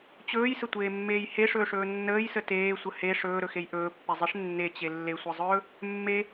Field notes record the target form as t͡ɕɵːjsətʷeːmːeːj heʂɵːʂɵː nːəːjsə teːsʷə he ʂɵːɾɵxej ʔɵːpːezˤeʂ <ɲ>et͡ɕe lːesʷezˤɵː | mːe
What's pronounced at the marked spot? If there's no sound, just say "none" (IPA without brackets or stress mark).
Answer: nː